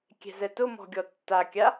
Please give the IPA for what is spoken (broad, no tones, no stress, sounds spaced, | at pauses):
kʲ ɛ̤ z ɛ t ʊ m ɔ̤ ɡʲ ɔ tː a kʲ a